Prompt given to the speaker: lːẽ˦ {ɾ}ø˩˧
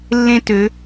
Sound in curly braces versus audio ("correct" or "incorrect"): incorrect